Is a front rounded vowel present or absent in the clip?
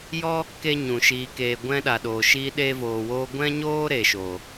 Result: absent